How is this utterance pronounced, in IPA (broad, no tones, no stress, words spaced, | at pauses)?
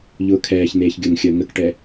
ʎʊːkʰɛːçn̪eːç ɡʲʊŋxʲəː ŋəkʈɛ